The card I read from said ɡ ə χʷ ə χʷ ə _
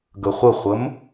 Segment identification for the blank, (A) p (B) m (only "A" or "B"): B